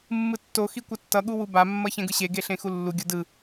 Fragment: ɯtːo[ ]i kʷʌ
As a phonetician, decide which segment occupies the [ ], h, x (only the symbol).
x